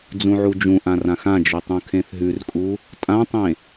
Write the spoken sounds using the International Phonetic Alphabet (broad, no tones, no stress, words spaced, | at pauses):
d͡zũʕud͡ʒũʔã rãxãd͡ʒy tˤũkʰẽθɦʉrkʼu | tʼãtˤẽ